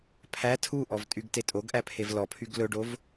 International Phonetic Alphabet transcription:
pʰæ tʰuʔɔvtʼyɡ tetʼoɡʔæ pʰevlɔpʰyɡ lɵɖov

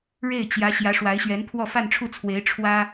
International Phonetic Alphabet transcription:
ɻe˥˩ɪ̯t͡ɕjä˧˥ ɕjä˧˥ʂwa˧˥ɪ̯ɕɥɛ˧˥npʰwɔ˥˧ fa˥˧nʈ͡ʂʰu˥˩t͡sʰwe˧˥ɪ̯ ʈ͡ʂʰwä˥

